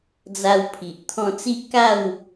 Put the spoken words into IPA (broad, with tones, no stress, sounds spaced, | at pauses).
d͡z a˧ w pʰ i˨ ʔ t̪ʰ ɔ̃˧ t͡s i˦ ʔ k a˥˧ w